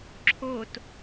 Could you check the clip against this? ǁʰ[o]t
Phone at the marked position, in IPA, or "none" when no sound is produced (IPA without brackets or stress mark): o